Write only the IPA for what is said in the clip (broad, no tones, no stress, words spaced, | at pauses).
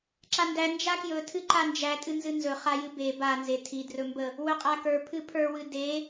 ǁandæ nd͡ʒakjɵtʰɨ ǃand͡ʒætʼɨ nzɨnzɵ χajɨbe banze tʰidrɵmbə | wɵqʼakə˞ pʰɨpʰə˞wɨ de